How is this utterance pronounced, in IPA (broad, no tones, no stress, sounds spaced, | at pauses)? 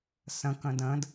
s ə̃ k ə̃ d ə̃ d